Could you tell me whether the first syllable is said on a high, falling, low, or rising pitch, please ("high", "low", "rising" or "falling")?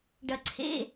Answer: low